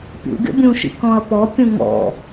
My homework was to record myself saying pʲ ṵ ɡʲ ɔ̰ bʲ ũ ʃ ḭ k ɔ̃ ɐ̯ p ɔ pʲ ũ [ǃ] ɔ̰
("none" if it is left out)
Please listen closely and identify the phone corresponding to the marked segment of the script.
ŋ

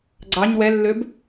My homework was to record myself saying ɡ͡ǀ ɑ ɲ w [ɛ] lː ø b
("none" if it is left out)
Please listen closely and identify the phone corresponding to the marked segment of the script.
ɛ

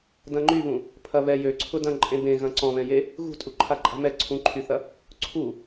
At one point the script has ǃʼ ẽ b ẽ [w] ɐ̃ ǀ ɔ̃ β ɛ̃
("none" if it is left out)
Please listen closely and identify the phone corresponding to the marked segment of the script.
ɣ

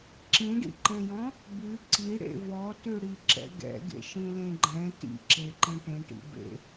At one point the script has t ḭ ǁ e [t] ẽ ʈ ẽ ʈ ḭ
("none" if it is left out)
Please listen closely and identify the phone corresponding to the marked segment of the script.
ǃ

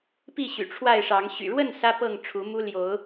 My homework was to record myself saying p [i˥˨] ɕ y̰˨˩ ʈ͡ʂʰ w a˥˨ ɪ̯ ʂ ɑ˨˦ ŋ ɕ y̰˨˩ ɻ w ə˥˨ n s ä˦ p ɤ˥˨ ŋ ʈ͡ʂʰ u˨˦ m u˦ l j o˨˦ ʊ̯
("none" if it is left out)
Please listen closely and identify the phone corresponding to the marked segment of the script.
i˥˨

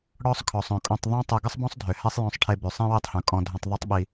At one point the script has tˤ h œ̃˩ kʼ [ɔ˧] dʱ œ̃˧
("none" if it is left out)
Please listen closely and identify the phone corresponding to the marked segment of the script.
ɔ̃˧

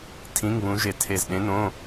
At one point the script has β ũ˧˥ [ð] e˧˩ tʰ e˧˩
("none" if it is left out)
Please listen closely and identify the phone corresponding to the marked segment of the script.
ʒ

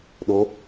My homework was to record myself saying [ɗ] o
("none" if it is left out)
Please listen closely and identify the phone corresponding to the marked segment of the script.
ɗ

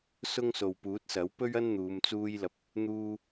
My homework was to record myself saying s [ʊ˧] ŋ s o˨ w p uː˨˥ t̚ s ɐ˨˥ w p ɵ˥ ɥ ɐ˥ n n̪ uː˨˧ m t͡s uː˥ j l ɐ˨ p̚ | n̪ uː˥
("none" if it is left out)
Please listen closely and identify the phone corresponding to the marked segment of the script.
ʊ˥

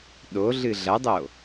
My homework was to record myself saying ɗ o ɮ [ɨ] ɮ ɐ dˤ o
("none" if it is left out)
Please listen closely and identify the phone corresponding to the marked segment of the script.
ɨ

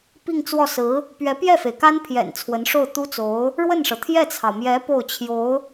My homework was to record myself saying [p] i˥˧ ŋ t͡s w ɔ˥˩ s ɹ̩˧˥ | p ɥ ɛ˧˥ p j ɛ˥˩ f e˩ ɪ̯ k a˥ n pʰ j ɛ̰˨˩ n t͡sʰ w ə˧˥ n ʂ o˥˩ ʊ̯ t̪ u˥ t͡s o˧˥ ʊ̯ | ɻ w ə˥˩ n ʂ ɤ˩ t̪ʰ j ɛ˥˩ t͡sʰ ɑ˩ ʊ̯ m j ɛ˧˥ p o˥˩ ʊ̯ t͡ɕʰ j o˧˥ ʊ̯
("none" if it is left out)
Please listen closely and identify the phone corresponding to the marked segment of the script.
p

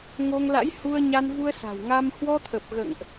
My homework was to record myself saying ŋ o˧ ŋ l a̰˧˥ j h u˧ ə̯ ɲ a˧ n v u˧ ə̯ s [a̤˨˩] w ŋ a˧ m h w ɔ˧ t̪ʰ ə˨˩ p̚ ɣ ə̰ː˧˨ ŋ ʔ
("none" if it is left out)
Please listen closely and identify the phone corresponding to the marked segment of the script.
a̤˨˩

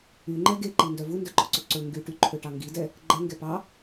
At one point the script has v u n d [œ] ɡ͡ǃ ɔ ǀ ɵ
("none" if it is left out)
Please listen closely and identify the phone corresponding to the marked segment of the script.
œ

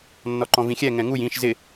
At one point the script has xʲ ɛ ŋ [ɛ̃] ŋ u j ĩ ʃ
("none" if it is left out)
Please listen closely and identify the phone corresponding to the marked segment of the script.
ɛ̃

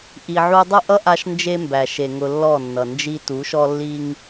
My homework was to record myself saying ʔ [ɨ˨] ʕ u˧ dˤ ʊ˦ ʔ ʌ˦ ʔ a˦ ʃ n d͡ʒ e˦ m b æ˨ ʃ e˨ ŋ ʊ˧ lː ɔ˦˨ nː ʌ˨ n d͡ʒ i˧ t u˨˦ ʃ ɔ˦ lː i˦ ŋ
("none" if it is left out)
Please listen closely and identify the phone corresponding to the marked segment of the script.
i˨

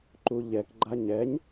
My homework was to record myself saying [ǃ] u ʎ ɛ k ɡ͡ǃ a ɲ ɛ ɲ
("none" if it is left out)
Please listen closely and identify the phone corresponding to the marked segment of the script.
ǃ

